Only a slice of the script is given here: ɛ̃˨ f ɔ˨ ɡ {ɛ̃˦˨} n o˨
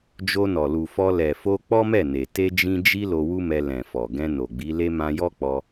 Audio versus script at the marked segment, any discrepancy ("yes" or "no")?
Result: yes